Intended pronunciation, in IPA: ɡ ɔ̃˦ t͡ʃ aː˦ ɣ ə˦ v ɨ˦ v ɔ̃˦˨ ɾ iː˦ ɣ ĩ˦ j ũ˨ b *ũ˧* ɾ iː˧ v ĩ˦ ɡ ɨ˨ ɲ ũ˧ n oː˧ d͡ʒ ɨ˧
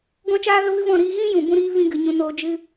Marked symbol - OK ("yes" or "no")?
yes